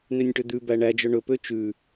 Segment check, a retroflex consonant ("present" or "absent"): present